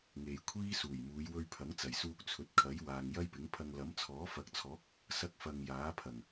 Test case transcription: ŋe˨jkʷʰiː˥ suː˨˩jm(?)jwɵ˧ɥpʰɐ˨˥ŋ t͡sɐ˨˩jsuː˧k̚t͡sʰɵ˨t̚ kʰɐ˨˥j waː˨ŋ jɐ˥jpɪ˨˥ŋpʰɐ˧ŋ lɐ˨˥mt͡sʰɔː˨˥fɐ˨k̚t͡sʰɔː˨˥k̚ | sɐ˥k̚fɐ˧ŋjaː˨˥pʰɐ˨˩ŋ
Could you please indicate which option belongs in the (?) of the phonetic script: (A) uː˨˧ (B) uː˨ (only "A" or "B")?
A